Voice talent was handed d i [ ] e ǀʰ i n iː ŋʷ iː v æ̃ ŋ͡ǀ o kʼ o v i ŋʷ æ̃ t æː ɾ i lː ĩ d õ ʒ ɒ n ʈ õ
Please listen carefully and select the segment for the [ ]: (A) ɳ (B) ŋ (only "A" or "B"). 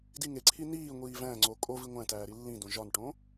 B